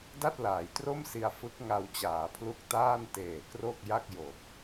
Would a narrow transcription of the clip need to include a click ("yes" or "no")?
no